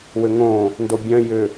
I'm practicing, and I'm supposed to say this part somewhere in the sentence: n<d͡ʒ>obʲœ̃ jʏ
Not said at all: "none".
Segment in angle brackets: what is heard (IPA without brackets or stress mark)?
d